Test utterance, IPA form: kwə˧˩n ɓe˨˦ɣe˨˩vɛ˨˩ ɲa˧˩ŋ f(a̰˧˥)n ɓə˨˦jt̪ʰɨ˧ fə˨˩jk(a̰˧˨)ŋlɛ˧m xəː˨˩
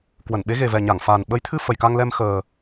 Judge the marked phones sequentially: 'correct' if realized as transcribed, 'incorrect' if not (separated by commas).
incorrect, incorrect